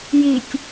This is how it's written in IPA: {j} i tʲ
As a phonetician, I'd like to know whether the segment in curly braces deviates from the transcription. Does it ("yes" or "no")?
no